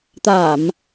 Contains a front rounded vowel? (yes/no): no